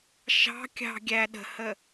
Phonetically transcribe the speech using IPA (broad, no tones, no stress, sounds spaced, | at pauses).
ʃ ɑ̤ kʲ ɑ̤ ɡʲ æ ɗ ə̤ h ə